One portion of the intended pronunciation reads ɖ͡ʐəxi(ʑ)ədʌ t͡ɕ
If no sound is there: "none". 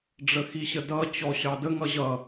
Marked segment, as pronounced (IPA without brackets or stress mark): ɕ